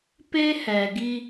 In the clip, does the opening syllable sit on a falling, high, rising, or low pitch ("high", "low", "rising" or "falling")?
high